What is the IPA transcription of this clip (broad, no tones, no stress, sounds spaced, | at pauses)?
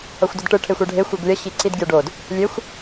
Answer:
ʌ xʷ d ʌ d ʈ ɯ ʈʰ e xʷ ɛ ɖʱ e xʷ ɯ ɡ lʲ ʌ ɕ i ǀ i d ɡʲ ʌ ɖ o d | lʲ e xʷ